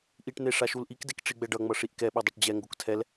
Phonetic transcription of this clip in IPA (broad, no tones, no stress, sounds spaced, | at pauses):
ʔ i ʈ n e ʂ a ʃ u l ʔ i k d e k ʈ͡ʂ i ɡ͡b ɛ ɖ ʌ ŋ͡m ʌ ʂ i ʔ k ɛ ɓ e dˤ o ʈ d͡ʑ ɛ ŋ ɡ o k tʰ ɛ l